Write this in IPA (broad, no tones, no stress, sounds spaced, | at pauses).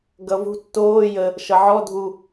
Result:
ɡ ʌ v ṳ tː oː j ə | ʃ ʌ ʕ ɔ dʱ u